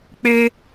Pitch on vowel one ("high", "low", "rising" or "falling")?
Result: high